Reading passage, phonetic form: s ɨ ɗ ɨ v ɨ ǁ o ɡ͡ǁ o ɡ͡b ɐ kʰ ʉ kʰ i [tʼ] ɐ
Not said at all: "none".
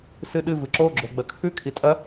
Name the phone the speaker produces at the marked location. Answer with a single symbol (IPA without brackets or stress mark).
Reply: tʼ